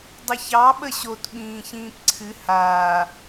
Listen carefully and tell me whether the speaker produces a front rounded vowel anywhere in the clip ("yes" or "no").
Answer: no